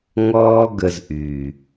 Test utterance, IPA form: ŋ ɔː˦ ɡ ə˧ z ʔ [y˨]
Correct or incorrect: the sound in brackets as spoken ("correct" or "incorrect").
correct